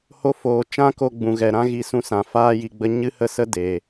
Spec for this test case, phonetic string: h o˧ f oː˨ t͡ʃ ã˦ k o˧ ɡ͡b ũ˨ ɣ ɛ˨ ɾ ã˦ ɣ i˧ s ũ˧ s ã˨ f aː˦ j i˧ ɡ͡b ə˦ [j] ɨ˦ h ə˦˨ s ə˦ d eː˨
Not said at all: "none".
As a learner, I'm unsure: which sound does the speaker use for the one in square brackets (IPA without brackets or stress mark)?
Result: ɲ